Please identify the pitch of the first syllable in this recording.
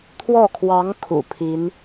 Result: falling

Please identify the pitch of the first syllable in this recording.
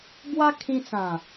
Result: high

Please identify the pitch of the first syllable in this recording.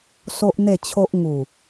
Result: high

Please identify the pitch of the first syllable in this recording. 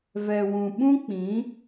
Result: low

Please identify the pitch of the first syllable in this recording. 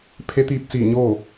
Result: rising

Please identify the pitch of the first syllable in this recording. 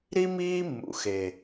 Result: high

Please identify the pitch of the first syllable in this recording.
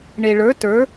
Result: low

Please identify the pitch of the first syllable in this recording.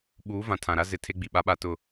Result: rising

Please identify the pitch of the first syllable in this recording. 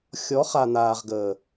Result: rising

